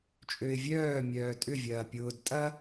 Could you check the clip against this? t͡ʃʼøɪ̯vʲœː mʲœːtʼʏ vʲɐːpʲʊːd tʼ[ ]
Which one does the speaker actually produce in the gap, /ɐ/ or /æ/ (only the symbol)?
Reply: ɐ